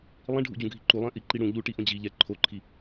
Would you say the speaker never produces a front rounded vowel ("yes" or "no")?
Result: yes